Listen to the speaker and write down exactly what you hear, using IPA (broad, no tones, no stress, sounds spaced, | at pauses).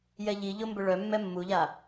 j ɛ ʎ i ʎ ʊ m b ʏ ɭ œ mː ɛ mː u ʎ a